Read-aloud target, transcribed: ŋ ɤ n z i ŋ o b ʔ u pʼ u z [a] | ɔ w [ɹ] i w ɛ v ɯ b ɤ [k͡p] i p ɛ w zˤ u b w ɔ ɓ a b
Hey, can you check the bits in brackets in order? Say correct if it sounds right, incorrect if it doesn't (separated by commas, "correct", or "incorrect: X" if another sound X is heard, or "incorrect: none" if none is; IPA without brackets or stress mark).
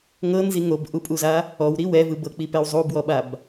correct, incorrect: ɾ, correct